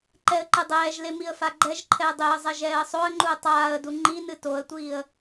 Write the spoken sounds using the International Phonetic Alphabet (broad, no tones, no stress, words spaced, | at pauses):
ǃɛə̯ǃɨdˤɛːʒle miə̯faɡ͡ǃɛʒǃʰɛə̯ dˤeə̯ zˤɛʒɛːə̯sˤoə̯ŋ͡ǃuə̯ tˤaːə̯du ŋ͡ǃinɨ toə̯tʷiːə̯